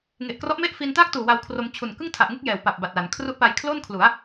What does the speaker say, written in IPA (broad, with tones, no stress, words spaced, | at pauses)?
ŋe˨˩ʔkrɔ˦˥ʔme˥˩ʔ fi˧ntaː˥˩k̚tuː˨˩ wa˧wkʰro˧m t͡ɕʰu˨˩nkɯ˥˩ŋtʰa˨˩ʔŋu˥˩k̚ jɛː˩˦wpa˨˩p̚ ba˨˩t̚la˩˦n kʰru˦˥ʔpa˧jkʰlo˥˩nkʰlu˩˦a̯